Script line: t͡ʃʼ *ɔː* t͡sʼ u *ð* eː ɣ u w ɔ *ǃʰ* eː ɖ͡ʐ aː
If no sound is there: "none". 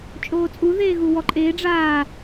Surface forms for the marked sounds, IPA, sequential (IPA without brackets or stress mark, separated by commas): oː, ð, ǃʼ